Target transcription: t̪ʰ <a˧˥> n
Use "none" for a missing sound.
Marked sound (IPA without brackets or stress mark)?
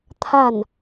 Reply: a˥˩